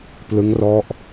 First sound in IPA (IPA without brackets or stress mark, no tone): p